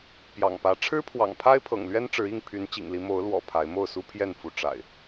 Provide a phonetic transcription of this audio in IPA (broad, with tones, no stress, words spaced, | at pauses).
pjɑ̰˨˩ŋpä˨˦ ʈ͡ʂʰɻ̩˦pʰwɑ̰˨˩ŋpʰa˦ɪ̯pʰɤ̰˨˩ŋ lɥɛ˦nʈ͡ʂɻ̩˨˦i˥˨ŋ pʰy˨˦nt͡ɕḭ˨˩ŋli˨˦ mo˨˦ʊ̯lwɔ̰˨˩ pʰa˨˦ɪ̯ mo˥˨ʊ̯su˦pʰjɛ˥˨nfu˨˦ ʈ͡ʂa̰˨˩ɪ̯